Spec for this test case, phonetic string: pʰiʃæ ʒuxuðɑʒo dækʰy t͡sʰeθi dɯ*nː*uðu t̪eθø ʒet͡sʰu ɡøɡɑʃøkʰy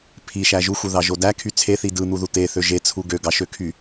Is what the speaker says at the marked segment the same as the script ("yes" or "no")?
no